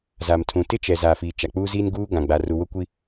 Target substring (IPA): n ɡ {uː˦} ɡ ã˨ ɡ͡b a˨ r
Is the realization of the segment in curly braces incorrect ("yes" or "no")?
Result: no